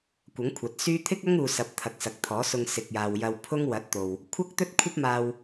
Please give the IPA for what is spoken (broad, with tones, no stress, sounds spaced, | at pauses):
kʷ ɐ˨˥ ŋ kʷʰ ɐ˨ t̚ s yː˥ t̪ʰ ɪ˥ k̚ ɐ˥ ŋ uː˧ s ɐ˨˥ p̚ t̪ʰ ɐ˨˥ k̚ s ɐ˨ k̚ t̪ʰ ɔː˨˥ s ʊ˧ ŋ s ɪ˨ k̚ j aː˨ w j ɐ˧ w pʰ ʊ˥ ŋ w ɐ˨˥ t̚ t̪ o˨ w | kʷʰ ɐ˥ k̚ t̪ ɵ˥ t̚ kʷʰ ɐ˥ p̚ m aː˧ w